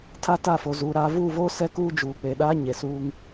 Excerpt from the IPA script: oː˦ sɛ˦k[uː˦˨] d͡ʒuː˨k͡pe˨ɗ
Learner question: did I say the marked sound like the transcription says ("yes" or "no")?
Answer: no